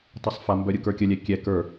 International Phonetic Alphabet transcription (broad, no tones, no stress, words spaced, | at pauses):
tˤɛsˤfambœ ɾʲɯkə˞kʲəlʲɛ kʲɛ kə˞